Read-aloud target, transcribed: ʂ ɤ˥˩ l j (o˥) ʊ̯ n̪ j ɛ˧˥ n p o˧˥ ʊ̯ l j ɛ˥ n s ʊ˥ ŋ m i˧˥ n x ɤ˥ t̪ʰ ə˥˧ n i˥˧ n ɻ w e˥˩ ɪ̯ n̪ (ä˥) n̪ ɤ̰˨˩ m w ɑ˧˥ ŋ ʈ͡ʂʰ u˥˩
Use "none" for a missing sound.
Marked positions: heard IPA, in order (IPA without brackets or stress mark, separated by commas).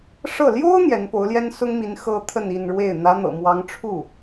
o˥, ä˧˥